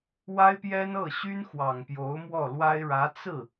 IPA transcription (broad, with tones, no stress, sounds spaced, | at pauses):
w a˥ ɪ̯ p j ɛ˥ n ɤ˥˩ ɕ y˥ n x w ɑ˨˩ ŋ p j o˧˥ ʊ̯ m w ɔ˥˩ l w a˥ ɪ̯ ɻ ä˧˥ t͡s ɹ̩˥˩